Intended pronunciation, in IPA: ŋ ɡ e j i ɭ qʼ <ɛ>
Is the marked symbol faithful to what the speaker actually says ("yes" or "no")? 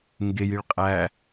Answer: no